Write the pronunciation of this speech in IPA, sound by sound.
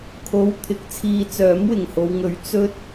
kʰ o˨˧ w t̪ʰ ɪ˨˥ k̚ t͡sʰ iː˧ t͡s œː˨˥ m w ɪ˨˩ ŋ h o˨˧ w ŋ ɵ˨˥ ɥ t͡s ɵ˥ t̚

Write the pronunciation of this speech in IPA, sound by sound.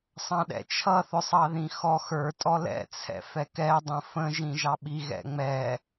sˤ ɑ̃ ɗ ɛ̰ t͡ʃʰ ʌ θ ʊ sˤ ɑ ð ĩ x ɔ x ə˞ tʼ ɔ l ɛ̰ t͡sʰ ɛ̰ f ɛ k ɛ dˤ ə̃ f ə̃ ʒ ĩ ʒ ɑ ɓ i ɣ ɛ̰ ŋ͡m ɛ

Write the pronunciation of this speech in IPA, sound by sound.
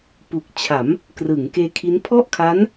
p u˨˩ k̚ t͡ɕʰ a˩˦ m | k r ɯː˩˦ ŋ k eː˧ kʰ i˦˥ n pʰ ɔ˥˩ ʔ kʰ a˦˥ n

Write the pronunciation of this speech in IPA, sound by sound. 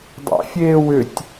dˤ æ̰ fʲ eː w ʏ tʲ

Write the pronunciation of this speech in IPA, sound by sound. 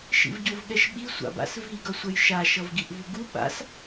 ʃ ḭ v ɟ o v ɠ ɛ ʃ ɓ i sʷ a̰ b a̰ s v i ɡ ʌ sʷ ɛ j ʃ a ʃ ʌ v ɡ i ʔ v u ɡ u ɓ a̰ s

